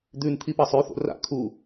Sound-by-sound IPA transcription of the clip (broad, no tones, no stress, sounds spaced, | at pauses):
d̪ ʉ n t̪ʰ i p ɐ sˤ ʉ θ o̰ r a̰ kʰ u